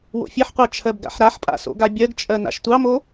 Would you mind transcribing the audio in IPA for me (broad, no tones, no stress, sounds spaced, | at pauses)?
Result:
w o̰ fʲ e ħ qʷ ɑ t͡ʃʰ ɜ b ɡ a̰ ħ ɾ a ħ pʼ a̰ s o̰ ɡ a bʲ ɜ ɡ t͡ʃʼ ɜ n a̰ ʃ tʷ ɑ m o